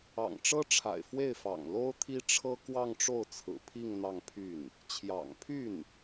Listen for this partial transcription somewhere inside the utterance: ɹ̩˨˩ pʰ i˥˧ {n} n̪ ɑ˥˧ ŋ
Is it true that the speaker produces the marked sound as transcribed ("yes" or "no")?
no